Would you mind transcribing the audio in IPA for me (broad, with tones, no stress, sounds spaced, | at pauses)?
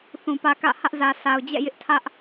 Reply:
θ ũ˨ p ä˦ k ä̰˦˨ h ä˦ ʔ z ä˨ sʰ a˨ ʊ̯ d͡ʑ ɛ̰˦˨ j ɪ˦ ʔ tʰ ä˦ ʔ